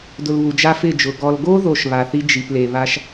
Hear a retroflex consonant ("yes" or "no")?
no